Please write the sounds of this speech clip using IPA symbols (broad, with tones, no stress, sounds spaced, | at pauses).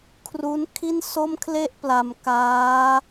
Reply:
kʰ r u˦˥ n kʰ i˥˩ n s o˥˩ m kʰ l e˥˩ ʔ p l a˧ m k aː˦˥